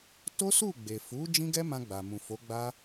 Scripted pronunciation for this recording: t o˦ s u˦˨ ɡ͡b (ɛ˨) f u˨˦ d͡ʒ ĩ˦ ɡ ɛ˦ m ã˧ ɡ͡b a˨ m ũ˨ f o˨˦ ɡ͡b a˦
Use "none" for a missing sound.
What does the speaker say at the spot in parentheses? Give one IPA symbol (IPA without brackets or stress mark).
e˨